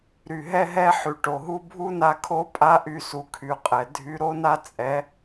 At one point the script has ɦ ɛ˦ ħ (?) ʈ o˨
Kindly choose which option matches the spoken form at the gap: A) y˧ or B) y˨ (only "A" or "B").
B